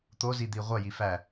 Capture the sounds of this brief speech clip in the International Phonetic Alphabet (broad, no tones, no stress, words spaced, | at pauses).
t̪ozi d̪iʁʷɐ jifæ